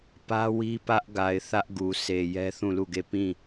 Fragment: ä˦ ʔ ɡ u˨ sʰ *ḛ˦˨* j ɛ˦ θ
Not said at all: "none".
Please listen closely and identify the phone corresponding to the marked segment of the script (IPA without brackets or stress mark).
e˨